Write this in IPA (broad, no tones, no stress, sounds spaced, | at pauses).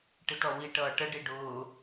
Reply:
ʈ ɪ t ɔ w i ʈ ʌː ʈ ə ɖ i ɖ ʊː